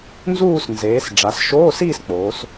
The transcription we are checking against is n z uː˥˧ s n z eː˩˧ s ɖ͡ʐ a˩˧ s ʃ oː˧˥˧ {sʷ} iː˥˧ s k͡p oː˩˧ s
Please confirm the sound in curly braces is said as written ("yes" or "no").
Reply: no